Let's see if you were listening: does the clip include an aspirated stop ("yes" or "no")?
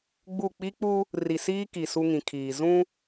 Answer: yes